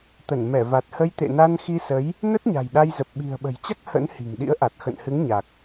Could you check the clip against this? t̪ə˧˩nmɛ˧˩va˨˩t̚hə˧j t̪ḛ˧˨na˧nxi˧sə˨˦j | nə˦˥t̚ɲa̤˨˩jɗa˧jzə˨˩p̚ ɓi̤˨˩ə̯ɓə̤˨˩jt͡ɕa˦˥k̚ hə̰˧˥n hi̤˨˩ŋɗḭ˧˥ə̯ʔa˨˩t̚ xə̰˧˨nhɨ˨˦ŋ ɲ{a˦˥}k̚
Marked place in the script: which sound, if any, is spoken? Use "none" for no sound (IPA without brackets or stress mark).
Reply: a˨˩